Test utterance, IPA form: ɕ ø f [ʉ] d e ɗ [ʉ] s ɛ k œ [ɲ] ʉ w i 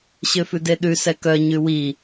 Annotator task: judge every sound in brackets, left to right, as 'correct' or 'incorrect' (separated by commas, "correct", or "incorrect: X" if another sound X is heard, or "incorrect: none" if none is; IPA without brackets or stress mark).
correct, correct, correct